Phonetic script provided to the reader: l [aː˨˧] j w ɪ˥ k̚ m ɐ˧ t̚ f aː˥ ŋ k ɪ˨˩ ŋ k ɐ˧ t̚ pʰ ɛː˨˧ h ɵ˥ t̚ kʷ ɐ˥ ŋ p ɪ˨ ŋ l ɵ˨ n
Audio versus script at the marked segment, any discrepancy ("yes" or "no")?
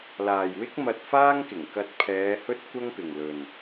yes